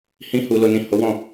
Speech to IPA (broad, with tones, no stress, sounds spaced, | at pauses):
h ĩ˦ h u˧ l o˧ n ĩ˨ h o˨˦ w ɔ̃˦˨